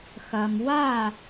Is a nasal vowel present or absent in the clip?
absent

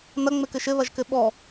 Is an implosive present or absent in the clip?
present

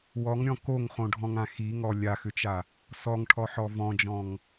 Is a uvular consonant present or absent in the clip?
present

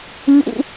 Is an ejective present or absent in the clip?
absent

